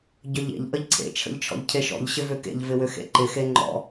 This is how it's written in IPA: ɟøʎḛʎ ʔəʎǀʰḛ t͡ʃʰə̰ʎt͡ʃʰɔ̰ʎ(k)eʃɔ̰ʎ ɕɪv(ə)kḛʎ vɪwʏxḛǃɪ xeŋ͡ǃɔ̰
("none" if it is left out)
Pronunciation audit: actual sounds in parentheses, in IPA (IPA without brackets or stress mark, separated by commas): cʰ, ʏ